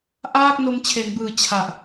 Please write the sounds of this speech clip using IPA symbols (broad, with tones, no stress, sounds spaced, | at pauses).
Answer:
ʔ aː˥˩ k̚ n o˧ m t͡ɕʰ e˩˦ n b ɯː˨˩ t͡ɕʰ a˨˩ ʔ